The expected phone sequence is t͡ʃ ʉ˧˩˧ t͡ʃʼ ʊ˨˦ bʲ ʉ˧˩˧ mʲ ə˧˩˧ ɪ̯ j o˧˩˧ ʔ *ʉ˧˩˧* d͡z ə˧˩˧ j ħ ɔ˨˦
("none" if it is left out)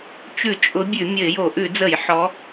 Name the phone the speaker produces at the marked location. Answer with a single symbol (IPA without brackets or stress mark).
ʉ˧˩˧